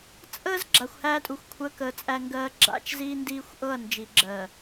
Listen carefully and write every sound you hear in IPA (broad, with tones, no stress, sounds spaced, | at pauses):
t͡sʼ əː˦ z ɡ͡ǁ a˨ xʷ h æː˦ tʼ u˨ xʷ kʷʰ əː˦ k əː˨ t͡sʼ æ˦ ŋ ɡ ɜː˦ ɡ͡ǁ a̰˦ t͡ʃ z iː˦ n d iː˦ xʷ ʔ ɤ˦˨ ɐ̯ n d͡ʒ i˨ ɡ͡ǁ ɜ˨